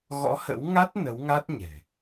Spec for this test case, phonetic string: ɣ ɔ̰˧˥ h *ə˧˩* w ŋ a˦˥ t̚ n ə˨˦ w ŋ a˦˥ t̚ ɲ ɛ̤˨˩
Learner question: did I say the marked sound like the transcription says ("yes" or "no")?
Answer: no